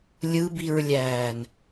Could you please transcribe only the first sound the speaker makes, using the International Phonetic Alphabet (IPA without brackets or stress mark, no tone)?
lʲ